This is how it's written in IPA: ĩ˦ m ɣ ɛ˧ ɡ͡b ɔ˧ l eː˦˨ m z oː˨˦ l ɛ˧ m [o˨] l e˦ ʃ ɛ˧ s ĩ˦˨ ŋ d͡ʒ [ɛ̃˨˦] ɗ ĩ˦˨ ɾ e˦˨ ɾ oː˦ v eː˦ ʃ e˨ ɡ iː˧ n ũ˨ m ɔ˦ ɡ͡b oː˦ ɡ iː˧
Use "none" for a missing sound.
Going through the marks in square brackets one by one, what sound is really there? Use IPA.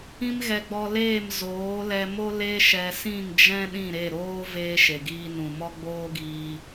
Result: o˦, ɛ̃˦

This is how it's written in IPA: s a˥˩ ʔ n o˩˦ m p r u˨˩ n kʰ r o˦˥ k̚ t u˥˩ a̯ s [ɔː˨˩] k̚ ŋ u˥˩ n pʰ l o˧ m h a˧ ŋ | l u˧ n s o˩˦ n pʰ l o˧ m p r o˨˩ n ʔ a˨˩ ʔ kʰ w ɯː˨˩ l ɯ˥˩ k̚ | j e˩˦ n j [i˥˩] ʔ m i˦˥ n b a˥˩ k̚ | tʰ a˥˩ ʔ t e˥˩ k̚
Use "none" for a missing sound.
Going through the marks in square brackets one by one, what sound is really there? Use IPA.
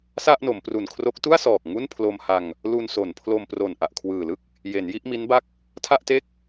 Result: ɔː˨˩, i˥˩

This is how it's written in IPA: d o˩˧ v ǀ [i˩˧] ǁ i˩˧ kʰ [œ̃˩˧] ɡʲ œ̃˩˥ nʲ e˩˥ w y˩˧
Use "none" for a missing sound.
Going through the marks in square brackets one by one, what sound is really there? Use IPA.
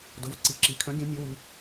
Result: i˩˧, œ̃˩˥

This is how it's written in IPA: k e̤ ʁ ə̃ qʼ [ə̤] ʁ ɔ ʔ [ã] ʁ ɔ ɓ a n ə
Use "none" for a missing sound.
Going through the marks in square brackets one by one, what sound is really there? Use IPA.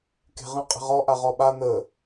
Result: ə̤, a

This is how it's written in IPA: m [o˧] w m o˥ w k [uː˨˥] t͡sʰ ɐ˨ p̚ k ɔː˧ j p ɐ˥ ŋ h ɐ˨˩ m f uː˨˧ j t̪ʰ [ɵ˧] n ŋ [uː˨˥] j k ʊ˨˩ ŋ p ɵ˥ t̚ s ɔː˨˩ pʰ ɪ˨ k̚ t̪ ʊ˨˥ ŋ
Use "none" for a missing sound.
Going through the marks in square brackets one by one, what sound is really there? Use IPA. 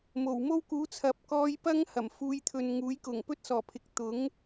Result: o˨˩, uː˨˥, ɵ˨, uː˨˥

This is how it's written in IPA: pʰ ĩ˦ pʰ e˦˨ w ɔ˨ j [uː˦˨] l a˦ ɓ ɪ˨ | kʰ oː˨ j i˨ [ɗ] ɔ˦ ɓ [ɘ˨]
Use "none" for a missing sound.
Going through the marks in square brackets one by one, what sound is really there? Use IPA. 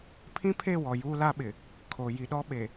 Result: uː˦, ɗ, e˨

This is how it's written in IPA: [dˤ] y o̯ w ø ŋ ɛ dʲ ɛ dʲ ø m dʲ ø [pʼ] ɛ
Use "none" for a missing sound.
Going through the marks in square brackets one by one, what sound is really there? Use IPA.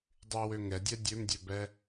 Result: dˤ, b

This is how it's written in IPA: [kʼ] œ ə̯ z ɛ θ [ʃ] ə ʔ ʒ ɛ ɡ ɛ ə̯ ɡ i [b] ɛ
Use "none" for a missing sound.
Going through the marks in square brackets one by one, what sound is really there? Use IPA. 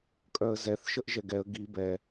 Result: kʼ, ʃ, b

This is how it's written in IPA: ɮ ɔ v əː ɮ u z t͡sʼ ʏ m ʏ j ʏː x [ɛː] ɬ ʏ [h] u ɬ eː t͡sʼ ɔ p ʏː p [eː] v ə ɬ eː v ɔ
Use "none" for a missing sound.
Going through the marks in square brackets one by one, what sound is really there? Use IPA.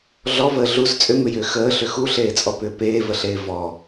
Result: əː, x, eː

